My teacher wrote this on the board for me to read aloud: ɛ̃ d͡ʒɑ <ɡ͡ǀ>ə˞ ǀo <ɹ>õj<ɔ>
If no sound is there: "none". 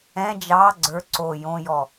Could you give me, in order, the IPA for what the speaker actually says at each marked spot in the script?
ɡ͡ǀ, j, ɔ

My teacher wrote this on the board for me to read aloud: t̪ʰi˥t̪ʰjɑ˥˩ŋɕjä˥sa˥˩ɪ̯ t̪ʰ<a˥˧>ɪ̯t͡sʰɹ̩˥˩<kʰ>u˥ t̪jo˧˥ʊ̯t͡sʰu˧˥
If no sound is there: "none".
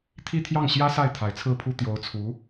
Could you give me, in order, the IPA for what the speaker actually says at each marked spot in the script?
a˧˥, pʰ

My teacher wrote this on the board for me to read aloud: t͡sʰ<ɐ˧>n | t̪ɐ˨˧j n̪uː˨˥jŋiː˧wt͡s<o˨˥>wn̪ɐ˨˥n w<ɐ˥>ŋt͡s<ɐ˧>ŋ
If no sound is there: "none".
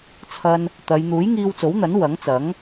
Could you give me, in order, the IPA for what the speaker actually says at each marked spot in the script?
ɐ˧, o˨˥, ɐ˨˥, ɐ˨˥

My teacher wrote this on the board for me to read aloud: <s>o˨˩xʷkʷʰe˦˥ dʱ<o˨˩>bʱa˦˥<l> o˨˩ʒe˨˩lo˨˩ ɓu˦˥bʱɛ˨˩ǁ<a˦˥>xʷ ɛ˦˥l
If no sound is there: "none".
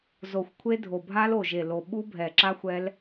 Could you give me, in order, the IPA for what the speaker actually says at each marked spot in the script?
z, o˨˩, l, a˦˥

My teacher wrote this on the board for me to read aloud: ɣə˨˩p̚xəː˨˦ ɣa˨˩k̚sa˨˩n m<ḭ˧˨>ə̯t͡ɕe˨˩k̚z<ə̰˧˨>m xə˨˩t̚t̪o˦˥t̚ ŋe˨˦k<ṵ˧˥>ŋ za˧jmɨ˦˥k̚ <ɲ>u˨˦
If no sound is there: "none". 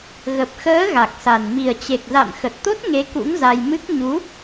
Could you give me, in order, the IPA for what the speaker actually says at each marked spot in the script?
i˨˩, a̰˧˨, ṵ˧˥, ɲ

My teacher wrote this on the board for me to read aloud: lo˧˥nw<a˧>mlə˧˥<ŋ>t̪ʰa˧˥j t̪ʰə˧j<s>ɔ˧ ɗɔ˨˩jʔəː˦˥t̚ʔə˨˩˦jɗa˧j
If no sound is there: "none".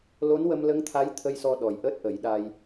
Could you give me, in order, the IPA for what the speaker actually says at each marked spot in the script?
ə˧, ŋ, s

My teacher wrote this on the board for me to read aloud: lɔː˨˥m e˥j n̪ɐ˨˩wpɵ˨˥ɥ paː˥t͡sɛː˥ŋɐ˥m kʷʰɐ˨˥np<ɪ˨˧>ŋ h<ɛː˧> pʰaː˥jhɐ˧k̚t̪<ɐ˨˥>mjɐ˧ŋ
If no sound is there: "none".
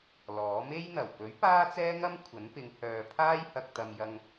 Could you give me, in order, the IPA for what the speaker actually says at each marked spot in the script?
ɪ˨˧, œː˧, ɐ˧

